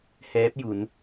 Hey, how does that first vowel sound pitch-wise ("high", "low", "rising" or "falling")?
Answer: rising